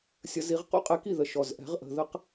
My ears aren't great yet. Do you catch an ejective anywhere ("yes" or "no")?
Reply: yes